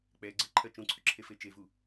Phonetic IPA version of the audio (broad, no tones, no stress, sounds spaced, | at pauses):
k͡p ɛ ɡ͡ǀ ɜ ǃʰ ɜ t͡ʃ ũ ǀʰ ʏ ǁʰ e f e t͡ʃ e v u